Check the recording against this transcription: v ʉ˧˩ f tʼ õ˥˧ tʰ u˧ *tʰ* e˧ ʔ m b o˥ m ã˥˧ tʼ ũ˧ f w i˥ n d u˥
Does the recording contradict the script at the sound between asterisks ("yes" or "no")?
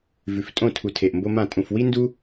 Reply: no